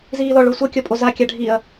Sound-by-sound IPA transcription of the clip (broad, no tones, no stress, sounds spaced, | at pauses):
z iː l ɔ ɭ o sʷ ɤ kʲ ɔ pʼ o z a kʲ a ɖʱ i ɐ̯